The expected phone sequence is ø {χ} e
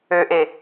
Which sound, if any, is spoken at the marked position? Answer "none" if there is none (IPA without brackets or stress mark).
ʔ